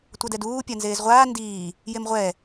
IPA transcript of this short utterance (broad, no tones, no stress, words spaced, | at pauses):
tʷʌdɛduː pʲanzeːzʁʷaː ndiː | jemʁʷɛː